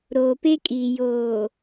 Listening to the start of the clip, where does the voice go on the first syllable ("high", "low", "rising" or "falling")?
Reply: low